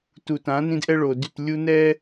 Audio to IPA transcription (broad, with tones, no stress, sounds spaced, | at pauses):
t u˨ t ã˨˦ n ĩ˦ d ʔ ɛ˦ ɭ o˨ d y˦˨ t lʲ u˦ n ɛ˦